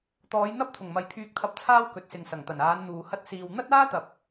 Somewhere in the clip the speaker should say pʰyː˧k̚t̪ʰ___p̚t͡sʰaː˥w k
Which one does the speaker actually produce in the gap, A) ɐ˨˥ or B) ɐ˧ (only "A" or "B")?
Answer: B